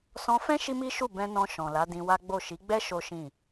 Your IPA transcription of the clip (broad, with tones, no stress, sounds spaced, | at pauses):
s ɔ̃˧ f ɛ̃˦ ʃ i˦ m i˦ ʃ u˦˨ b ɛ̃˧ n ɔ̃˧ ʃ ɔ̃˨ l a˨˦ d ĩ˧ w a˦ ɡ͡b o˦˨ ʃ i˨˦ ɡ͡b ɛ˦ ʃ o˦ ʃ ĩ˦˨